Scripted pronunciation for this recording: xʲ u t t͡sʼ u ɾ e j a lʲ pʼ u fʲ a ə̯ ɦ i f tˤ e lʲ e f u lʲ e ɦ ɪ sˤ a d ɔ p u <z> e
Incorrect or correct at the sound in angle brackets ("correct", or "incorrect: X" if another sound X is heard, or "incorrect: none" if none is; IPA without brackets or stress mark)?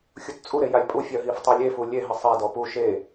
incorrect: ʃ